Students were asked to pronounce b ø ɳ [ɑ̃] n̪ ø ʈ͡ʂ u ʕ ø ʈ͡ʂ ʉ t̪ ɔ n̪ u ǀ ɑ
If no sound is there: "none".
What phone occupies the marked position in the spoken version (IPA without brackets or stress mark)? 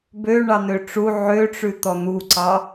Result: ɑ